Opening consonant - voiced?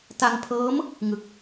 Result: no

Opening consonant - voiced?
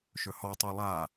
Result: no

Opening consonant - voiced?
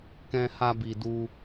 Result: no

